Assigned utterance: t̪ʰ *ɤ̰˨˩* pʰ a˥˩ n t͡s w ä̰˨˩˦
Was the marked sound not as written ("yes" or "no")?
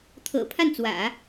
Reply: no